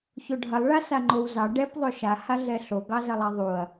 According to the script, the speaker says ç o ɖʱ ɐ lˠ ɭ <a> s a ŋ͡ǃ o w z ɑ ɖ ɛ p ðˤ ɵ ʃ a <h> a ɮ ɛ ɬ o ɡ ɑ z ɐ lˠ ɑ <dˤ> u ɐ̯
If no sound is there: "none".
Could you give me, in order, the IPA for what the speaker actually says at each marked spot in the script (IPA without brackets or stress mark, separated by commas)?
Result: a, h, ðˤ